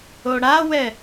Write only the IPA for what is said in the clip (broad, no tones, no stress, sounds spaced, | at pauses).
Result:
o ɽ a w ɛ